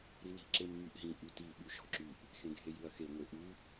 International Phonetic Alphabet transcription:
ɾili̤ ǁemːyʔɦĩ ʔyti ɓʉʃɔ̤ǁyʔ | xẽɡʱejʉɐ̯xe ŋʷeʔʉ

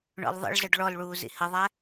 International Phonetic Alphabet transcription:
ɳɔ̰lðˤə̰ɭzəɖ ɭɔlɭuː zḭhəðˤæ

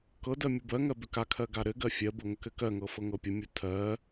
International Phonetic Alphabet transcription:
kɤdɜ mʲubɜŋɜ bʏkakʰɜ ɡaɾɘɡɜ fʲɜbɤ ŋəkɘkɜŋɤ fɤŋɤpʲəmʲu tʰɜ

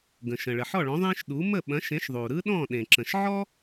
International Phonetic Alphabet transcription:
ɡə̃˩ʃə̃˩ ɭə˩ ħɔ˥˨ɭɔ̃˨˥ ðˤẽ˥ʃɗu˨˥ mə˥˨ɓɐ̃˨˥ʃẽ˨˥ʃ ðˤu˩ɾɯ˥ɗɔ̃˥˨ ɗẽ˩ǁə̃˩ʃʕɔ˥

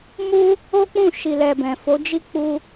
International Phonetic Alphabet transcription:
mu˦ | o˦k͡pũ˦˨ ʃi˨lɛ˨ bɛ̃˨fo˨˦d͡ʒi˦˨ k͡pu˧

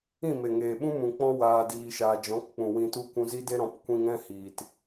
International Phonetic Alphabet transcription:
ĩ˦˨me˨ŋeː˨ɓũ˦ mũ˨ k͡pɔ̃˦ waː˧ diː˧ʃaː˧ d͡ʒɔ̃˨˦kk͡pũ˨ wĩ˧tu˦ kʷũ˧zi˦de˦ ɾɔ̃˨˦pkʷĩ˧ŋɛ̃˦ hiː˨t

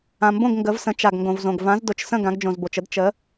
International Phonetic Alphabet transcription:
ã˩mbõ˥˩ɡ ŋɡə˩˧vsə̃˩˧ t͡ʃa˩ɡŋɡõ˩vzõ˩ɡ vã˩˥z dʊ˩˧t͡ʃsə̃˥˩ ɡã˩˧ɡd͡ʒõ˩zbo˩t͡ʃə˩˥d t͡ʃə˩˥

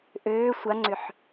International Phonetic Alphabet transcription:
ʔøː sʷaŋ͡ǀʏħ

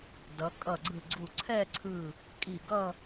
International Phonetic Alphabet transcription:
dʌ˩˧ kʼʌ˧˩ɡ͡ǀɯ˧˩ɡ͡ǀu˧˩ ǀʰɛ˥˧ǀʰɯ˧˩ | kʼi˧˩ɡʌ˥˧

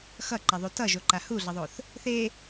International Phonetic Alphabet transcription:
xʌǃɛðˤu tʌʒoǃa huɮʌðˤoθ | θe

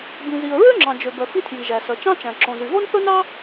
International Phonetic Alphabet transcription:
bĩ˩zi˩ə̯ ɹø˥ŋ͡ǁɑ̃˩d͡ʒø˩bœ˩ fi˥tʰji˩ʒæ˩ sœ˩t͡ʃɑ̃˥t͡ʃæ̃˩ ǁõ˩zy˩ ɣo˥nθɵ˥nɑ˥

